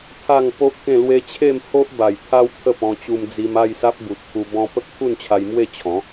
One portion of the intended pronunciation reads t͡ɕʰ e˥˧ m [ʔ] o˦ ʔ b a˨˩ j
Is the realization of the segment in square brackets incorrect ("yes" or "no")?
yes